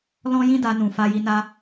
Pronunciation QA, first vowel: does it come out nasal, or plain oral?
nasal